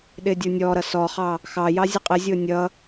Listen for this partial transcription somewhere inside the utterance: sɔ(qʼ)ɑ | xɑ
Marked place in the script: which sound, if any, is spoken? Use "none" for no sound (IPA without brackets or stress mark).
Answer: χ